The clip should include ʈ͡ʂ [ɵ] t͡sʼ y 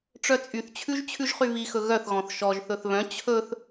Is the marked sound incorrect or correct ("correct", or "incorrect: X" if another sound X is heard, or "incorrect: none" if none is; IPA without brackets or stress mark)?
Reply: incorrect: œ